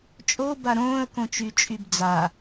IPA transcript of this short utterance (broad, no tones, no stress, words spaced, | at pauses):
t͡ʃʼo baɾõːə̯kõt͡ʃy t͡ʃʼybd͡za